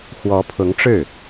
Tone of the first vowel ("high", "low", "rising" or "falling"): rising